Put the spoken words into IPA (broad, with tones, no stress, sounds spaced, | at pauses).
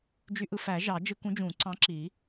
d͡ʒ y˦ ʔ ɯ˦ f æ˨˩˦ ʒ ɑ˨˩˦ d͡ʒ ɯ˦ k ũ˨˦ d͡ʒ ũ˨˩˦ ǀ ɑ̃˨˦ ǁ i˨˩˦